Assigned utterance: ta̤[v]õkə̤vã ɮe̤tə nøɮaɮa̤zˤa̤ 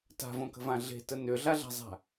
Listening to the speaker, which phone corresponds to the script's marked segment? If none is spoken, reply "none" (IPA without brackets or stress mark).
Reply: v